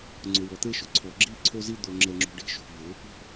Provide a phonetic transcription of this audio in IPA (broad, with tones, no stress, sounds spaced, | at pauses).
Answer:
ŋ͡ǀ ʊ˨ w ɔ˨ t̪ e˦ ʃ ʊ˨ ǀʰ ɔ˨ ɡ͡ǁ i˦˨ ǀʰ o˦ z i˦ d̪ o˦ ŋ͡ǁ ɛ˦ ŋ͡ǁ ṳ˦ ɖ i̤˦ ʃ ṳ˨ v ʊ˨˦ | ṳ˦˨